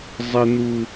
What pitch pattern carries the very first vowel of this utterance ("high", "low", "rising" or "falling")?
high